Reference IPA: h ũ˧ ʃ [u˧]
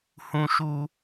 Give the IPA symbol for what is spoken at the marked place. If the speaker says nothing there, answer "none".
u˧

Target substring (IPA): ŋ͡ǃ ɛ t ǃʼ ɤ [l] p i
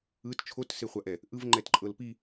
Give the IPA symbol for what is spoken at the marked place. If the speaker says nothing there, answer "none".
l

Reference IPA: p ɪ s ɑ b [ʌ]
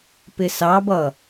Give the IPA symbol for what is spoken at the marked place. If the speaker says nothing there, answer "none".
ʌ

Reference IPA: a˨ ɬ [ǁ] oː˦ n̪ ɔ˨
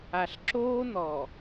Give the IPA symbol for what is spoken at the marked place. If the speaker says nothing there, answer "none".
ǁ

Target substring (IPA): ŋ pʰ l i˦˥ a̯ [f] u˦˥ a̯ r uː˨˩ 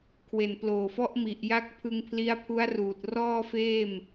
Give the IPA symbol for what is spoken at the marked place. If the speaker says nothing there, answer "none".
pʰ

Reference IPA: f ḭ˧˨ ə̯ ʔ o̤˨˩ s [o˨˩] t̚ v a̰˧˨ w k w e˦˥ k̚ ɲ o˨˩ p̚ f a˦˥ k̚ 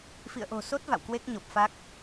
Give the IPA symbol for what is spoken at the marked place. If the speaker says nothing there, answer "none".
o˦˥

